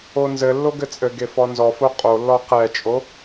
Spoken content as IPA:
o n z ɘ lː o ɡ ɘ t͡sʼ ɘ ɡ e f ɔ n z ɔ f o qʼ o lː ɔ q ɛ t͡ʃʼ o

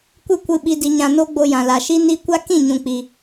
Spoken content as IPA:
kʷ ɨ˦ kʷ ɨ˧ ɓ i˧ d i˧ ɲ ã˧ n o˦ ɡ͡b o˧ j ã˨ l a˨ ʃ i˦ n i˦ kʷ a˦ k ĩ˦˨ ɲ ũ˨ k͡p i˨

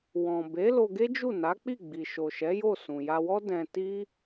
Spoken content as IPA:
w ɔ̃˨ b e˨˦ l o˧ ɡ e˦ d͡ʒ u˦˨ n a˨˦ k͡p i˦˨ ɡ͡b i˨ ʃ o˨ ʃ ɛ˨˦ j o˦˨ s ũ˨ j a˧ w ɔ˦ d ɛ̃˧ t i˦

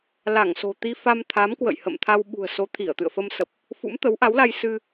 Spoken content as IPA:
l a˧˩ ŋ s o̤˨˩ t̪ i˧ f a˧ m t̪ʰ a˨˦ m k w ə̰˧˨ j h ə̰˧˨ m t̪ʰ a˧ w ɓ ṳ˨˩ ə̯ s o˨˦ t̪ʰ i˧˩ ə̯ t̪ ɨ̰˧˨ ə̯ f ə˧ m s ə˨˩ p̚ | f ṵ˧˥ m t̪ ə˨˦ w ʔ a˨˦ w l a˧ j s ɨ˧

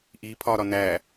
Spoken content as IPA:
ʔ i pʰ ɒ ɾ ɒ n æ

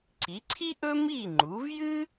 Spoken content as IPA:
ǀ i˩˥ ǀʰ i˥ ʔ ɵ˥ m i˥˩ ŋ͡ǃ u˩˥ v j ɨ˥

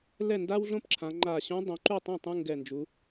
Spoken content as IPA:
l ɛ˥˩ n d a˥ w ɮ õ˥ p ǁʰ ã˩˧ ŋ͡ǃ a˧˩ ɕ ũ˧˥ dˤ õ˩˧ ǃ u˥˩ tˤ ɛ̃˥˩ tˤ ũ˧˥˧ ŋ ɡ ɛ˧˩ n d͡ʒ u˩˧

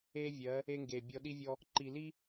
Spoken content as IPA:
e˦ vʲ ɜ˨˦ | e˦ ŋ ɡ e˨ bʲ ɔ˦ ɗ i˦ vʲ ɔ˦ | ǃ i˨ l i˦

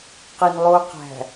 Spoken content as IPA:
q i n lˠ o q æ̤

